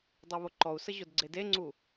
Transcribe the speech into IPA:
dˤ ɑ β o ǃ ɔ u̯ s ə ʑ o d ɡ͡ǀ e d e ŋ͡ǀ u

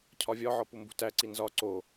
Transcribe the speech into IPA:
cʰ ɒ vʲ ɒ ʕ ɒ p u m b ṳ t æ ǀ i n z ɒ ǀ o

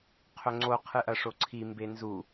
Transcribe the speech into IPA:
qʰ ɵ ŋ͡ǀ o qʰ ɨ ʔ ɐ ʂ o ǀʰ i m b e n z u

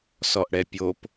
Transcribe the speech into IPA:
s ɔ ʔ ɽ ɛ pʲ o p

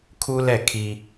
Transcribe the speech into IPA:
kʰ uː˦ l ɛ˦˨ kʰ i˦

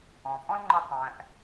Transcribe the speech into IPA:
ɔ̃˩ pʼ ɔ̃˥ l ŋ͡ǃ ə˧ tˤ æ̃˩ ʔ

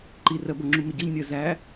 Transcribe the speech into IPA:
ǃ i r ɜ b ʌ ŋ͡ǁ u m ɪ ɟ ʌ ʎ nʲ ɜ z æ

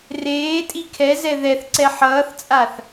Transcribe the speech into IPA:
r eː tʼ i kʰ ɛ z ɛ ð ɛ θ ǀ ɛ ħ ʌː θ t͡sʼ a θ

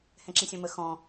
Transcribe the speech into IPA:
h ɛ̃ ǁ ĩ sʲ ɔ̃ m ə x ɔ̃

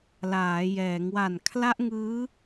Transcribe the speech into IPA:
l aː˩˦ j ɛː˩˦ ŋ w a˨˩ n kʰ l a˦˥ ʔ ŋ ɯː˦˥

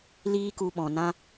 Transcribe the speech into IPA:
l iː˦ k u˧ ɓ ɔ̃˨ n ã˦

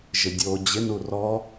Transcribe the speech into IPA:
ʒ ɪ dʲ o d͡ʑ ɪ n u r ɔ

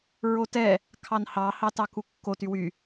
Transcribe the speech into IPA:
ɹ o t ɛ | kʰ ɑ n h ɑ h ɑ t ɑ k u kː o t y w y

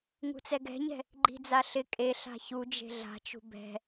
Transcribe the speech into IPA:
ŋ ṳ t͡s ɛ ɡ ɛ̤ ɲ ɛ̤ | ɡ͡ǃ i̤ d͡z a ɬ ɪ kʼ e ɬ a̤ ç u d͡ʒ e̤ ɮ a̤ t͡ʃ ṳ b ɛ̤

